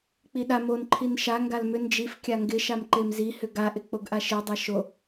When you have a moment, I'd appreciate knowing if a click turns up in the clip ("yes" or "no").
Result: yes